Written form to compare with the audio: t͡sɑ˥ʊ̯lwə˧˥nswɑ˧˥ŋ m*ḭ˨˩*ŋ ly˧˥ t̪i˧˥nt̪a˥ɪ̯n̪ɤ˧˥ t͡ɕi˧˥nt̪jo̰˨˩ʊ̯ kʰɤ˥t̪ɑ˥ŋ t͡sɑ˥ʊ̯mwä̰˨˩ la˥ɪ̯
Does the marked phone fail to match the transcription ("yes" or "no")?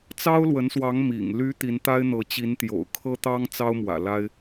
no